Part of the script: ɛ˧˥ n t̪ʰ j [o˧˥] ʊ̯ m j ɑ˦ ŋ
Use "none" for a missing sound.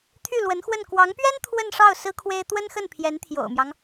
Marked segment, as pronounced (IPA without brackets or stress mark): o̰˨˩